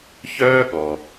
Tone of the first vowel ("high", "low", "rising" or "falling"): high